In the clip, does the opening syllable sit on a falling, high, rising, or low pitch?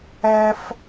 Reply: high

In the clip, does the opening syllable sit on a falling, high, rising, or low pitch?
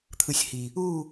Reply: low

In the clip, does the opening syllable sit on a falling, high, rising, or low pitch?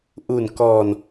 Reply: low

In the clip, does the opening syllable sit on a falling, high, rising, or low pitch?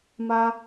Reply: high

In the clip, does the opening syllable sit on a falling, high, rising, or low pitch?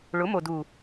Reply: rising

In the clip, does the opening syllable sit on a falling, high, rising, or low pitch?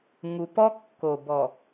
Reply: low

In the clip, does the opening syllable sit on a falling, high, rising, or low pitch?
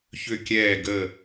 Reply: falling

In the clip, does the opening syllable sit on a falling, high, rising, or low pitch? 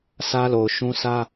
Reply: high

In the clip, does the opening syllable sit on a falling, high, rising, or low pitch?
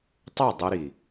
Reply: falling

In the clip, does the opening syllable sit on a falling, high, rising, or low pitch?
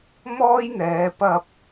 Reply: high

